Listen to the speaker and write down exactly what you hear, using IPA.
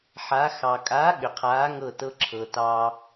ħa˩˧xɑ˩kʼa˨˥ ɠʏ˩qʰaː˨˥ŋɤ˧˩ tɤ˧ǁʰɤ˩tɑ˧

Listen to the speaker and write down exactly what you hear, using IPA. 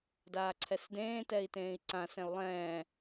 daːǀʰɛsdẽː tɛi̯tẽːi̯ǀã sɛ̃u̯lˠɛ̃ː

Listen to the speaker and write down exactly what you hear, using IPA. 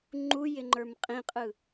ŋ͡ǃujɪŋ͡ǃə˞m qʼĩqʼɯ

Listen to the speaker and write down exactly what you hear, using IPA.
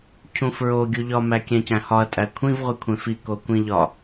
cʰũfɹo ɡʲuʎɒmæ kʲæ̃cæ̃hɒɐ̯tʼæ kʷʰĩvʁʷikʷʰẽ fi kokʷĩʎɒ

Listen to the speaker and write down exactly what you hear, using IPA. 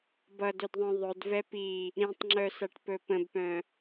bʌdɵdðˤœ̃ ðˤɵd vɛpi | ɾĩtˤŋ͡ǁœsaʈ pɵpə̃bpœ̃

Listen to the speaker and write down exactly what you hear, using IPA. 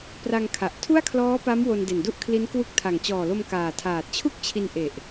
pra˧ŋkʰa˨˩ʔ tʰu˥˩a̯kʰlɔː˦˥pa˦˥m wo˧nde˨˩ndu˥˩ʔkʰli˦˥n kwu˦˥k̚tʰa˨˩ŋ t͡ɕɔː˨˩lo˧m kaː˨˩ tʰaː˨˩t̚t͡ɕʰu˥˩k̚t͡ɕʰi˧n ʔe˨˩ʔ

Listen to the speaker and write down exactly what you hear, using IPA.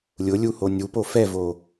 lʲʊlʲu honʲupo fɛvo

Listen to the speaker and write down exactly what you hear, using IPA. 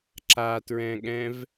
ǁatɹɛ̃ɠɛ̃v

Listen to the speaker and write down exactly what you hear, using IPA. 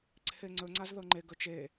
ǀʰeŋ͡ǀɵŋ͡ǀaz ðɤŋ͡ǃeɡɵ t͡ʃe

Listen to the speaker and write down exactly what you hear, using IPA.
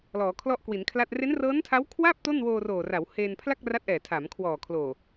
lɔː˩˦kʰlɔ˥˩ʔkwi˩˦nkʰla˥˩t̚ re˦˥nrɤː˦˥ntʰa˦˥w kʰwa˥˩p̚ to˥˩nwoː˧roː˨˩ra˩˦w he˧n pʰla˥˩k̚ra˦˥t̚ʔɛː˨˩ tʰa˩˦mkʰwɔː˨˩kʰloː˨˩

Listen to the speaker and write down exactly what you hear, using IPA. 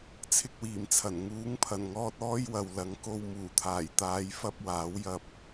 t͡sʰɪ˧k̚wiː˨˩mt͡sʰɐ˨˩n ŋuː˨˥ŋpʰɐ˨˩nŋɔː˧t̚ ɔː˥jwɐ˨wlɐ˨˥ŋ ko˧w muː˨˩t̪ʰaː˨˩jt̪aː˨˧jfɐ˧p̚ waː˨˥wjɐ˧p̚

